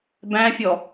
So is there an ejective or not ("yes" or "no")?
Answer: no